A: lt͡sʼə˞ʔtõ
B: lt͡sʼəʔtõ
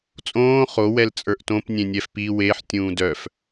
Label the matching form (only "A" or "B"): A